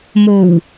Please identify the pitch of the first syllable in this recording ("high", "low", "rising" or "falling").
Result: low